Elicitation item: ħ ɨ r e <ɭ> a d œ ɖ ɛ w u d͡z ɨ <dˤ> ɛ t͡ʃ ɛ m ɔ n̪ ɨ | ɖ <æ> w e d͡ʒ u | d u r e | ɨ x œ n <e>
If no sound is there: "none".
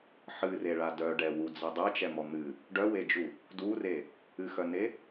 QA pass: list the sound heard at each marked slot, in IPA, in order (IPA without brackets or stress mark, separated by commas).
ɭ, dˤ, œ, e